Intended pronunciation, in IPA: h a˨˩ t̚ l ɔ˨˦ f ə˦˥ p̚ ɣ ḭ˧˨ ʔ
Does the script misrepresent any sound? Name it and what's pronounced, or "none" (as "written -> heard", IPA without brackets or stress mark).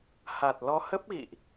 f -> h